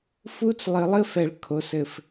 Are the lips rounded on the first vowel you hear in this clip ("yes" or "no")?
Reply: yes